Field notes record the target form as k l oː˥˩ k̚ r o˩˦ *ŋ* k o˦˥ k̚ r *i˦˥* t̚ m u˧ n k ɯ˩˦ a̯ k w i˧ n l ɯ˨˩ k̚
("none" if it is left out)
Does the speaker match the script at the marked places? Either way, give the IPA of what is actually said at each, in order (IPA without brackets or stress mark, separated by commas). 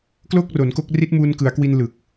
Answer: n, i˦˥